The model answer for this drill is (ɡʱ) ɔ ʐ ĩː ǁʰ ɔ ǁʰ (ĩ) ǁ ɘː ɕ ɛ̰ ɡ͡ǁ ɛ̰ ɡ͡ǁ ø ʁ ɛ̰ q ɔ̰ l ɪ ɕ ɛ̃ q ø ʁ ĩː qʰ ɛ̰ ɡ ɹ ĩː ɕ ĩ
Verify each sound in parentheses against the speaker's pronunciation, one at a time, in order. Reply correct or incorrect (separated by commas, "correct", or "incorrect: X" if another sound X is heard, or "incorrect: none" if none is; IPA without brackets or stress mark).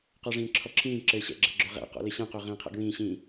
incorrect: q, incorrect: ĩː